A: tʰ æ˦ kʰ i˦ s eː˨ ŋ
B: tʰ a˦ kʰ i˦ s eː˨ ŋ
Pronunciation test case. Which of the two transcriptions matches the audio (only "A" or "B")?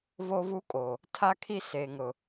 B